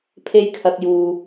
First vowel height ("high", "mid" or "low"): mid